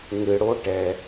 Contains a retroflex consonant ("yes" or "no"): yes